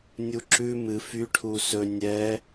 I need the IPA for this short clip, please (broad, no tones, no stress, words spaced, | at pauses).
nʲuǁʉ mɨ fy ʈʰusɵ nʲɛ